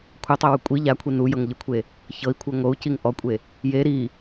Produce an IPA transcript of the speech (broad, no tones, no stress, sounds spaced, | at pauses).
kʷʰ ɛ tˤ e w u kʷʼ i ʎ a kʷʰ i n u j ɤ ŋ ʎ ɯ kʷʰ e | ç ɤ i̯ kʷʰ ɤ ŋ o u̯ c i ŋ ʔ ɔ kʷʼ e | j e ɾ i